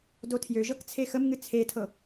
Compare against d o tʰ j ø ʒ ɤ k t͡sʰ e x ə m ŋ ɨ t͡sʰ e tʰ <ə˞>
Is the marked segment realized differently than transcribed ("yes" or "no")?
yes